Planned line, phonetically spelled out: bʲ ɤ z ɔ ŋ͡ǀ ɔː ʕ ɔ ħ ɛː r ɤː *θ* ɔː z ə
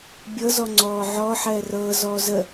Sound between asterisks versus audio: incorrect: z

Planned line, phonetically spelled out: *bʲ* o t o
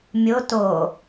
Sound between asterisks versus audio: incorrect: mʲ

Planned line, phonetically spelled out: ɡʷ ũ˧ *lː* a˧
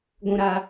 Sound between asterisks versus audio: incorrect: ɾ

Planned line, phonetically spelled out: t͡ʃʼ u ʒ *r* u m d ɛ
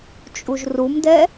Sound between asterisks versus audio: correct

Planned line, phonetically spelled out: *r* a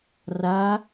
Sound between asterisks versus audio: correct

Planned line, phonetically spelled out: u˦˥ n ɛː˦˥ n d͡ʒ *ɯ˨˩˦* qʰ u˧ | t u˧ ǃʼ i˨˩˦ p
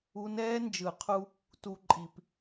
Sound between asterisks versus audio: correct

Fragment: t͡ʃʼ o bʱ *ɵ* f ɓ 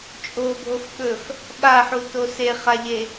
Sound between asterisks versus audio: incorrect: o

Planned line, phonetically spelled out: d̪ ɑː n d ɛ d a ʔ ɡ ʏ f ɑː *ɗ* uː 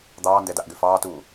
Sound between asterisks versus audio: incorrect: t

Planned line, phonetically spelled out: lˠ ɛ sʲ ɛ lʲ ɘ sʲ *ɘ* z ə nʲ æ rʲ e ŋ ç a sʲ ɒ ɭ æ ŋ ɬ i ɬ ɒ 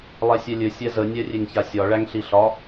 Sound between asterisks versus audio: incorrect: ɛ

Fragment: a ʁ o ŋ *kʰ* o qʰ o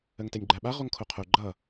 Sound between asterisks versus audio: correct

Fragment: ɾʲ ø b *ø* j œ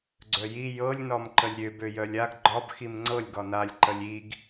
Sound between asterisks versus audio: correct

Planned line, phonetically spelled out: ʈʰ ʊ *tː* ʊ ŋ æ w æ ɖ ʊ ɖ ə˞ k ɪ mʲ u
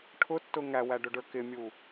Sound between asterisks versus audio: correct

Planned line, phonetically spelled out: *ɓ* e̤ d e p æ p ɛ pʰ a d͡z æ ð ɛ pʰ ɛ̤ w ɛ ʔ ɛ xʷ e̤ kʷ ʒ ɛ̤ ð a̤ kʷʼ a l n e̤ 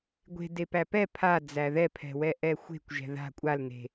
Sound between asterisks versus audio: incorrect: ɡʷ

